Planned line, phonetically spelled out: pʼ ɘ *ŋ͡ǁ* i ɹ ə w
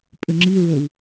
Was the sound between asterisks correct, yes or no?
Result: yes